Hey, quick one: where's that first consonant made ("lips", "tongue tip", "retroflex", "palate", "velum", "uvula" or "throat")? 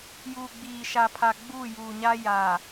palate